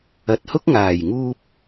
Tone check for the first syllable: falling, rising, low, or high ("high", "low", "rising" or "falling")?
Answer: low